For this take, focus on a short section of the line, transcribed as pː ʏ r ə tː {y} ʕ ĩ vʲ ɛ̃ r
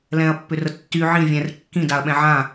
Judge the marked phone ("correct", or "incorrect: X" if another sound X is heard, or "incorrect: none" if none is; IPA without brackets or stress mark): correct